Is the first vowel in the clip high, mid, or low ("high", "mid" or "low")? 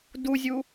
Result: high